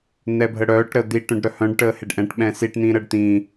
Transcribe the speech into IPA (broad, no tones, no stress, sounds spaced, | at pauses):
n̪ ɛ bʱ ə ɽ œː ʈ ɾ əː d̪ i ʈ œ̃ ɖ ɾ œ h œ̃ ɖ ʈ əː h e ɖ ʔ ɛ̃ ʈ ɓ ɛ̃ s i ʈ n̪ ĩː ɾ əː ɖ t̪ ĩː